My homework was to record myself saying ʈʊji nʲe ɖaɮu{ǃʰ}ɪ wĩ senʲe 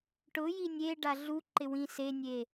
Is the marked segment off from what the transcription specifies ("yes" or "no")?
yes